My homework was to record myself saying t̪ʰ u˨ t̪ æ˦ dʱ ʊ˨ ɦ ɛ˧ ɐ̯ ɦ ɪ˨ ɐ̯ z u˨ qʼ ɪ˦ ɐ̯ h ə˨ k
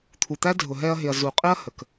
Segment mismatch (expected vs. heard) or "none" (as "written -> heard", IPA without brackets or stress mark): none